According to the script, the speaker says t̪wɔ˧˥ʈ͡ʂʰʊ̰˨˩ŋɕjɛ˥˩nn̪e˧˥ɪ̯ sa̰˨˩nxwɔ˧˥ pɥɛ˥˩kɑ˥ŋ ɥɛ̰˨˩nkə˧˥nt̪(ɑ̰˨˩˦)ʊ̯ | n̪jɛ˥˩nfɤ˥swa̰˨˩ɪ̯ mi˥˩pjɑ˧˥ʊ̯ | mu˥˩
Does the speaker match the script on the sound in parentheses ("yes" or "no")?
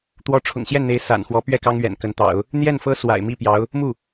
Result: yes